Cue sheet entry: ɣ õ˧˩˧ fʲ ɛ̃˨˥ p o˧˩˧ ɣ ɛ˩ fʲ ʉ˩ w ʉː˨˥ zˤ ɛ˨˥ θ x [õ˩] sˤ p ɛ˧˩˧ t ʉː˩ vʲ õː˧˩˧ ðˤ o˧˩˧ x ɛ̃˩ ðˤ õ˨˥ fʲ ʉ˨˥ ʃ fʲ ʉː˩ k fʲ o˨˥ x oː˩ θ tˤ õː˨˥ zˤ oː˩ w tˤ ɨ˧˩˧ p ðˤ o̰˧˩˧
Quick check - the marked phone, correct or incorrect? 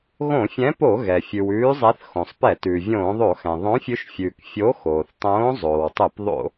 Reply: correct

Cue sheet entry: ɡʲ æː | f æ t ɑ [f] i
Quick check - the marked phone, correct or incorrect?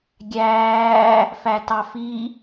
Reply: correct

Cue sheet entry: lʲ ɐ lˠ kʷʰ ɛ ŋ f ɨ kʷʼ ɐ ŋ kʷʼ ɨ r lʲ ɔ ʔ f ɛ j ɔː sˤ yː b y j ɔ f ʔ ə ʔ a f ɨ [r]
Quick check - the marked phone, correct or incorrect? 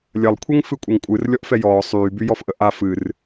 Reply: correct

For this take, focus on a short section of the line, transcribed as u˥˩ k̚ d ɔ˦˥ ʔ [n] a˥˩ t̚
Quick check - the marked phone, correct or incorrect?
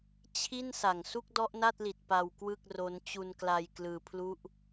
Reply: correct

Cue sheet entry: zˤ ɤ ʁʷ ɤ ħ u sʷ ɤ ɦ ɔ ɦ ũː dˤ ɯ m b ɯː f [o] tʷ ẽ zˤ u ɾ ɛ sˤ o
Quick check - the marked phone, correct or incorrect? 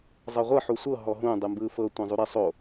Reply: incorrect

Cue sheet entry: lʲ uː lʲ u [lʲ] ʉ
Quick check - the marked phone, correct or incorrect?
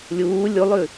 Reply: incorrect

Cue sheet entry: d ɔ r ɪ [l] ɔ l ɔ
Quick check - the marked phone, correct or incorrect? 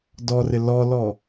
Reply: correct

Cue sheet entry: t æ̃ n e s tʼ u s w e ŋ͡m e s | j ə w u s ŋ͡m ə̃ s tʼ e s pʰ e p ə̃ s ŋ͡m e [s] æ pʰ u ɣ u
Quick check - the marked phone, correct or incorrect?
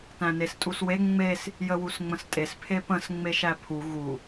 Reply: incorrect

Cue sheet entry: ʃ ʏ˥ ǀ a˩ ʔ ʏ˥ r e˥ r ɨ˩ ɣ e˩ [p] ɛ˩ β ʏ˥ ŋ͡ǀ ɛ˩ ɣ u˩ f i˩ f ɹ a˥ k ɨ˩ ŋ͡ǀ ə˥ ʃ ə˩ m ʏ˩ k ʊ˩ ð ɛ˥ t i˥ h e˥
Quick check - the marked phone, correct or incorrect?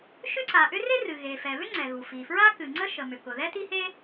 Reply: incorrect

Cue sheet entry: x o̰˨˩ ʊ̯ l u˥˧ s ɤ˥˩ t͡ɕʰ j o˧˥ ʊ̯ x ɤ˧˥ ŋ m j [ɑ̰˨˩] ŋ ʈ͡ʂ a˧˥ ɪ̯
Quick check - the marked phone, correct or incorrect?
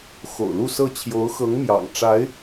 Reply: correct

